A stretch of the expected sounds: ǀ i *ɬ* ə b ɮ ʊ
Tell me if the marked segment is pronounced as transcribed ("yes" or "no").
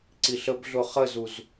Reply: yes